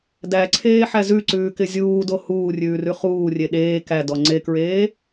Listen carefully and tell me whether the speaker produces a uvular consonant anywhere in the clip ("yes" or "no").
yes